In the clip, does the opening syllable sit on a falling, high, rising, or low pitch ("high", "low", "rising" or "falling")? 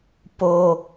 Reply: high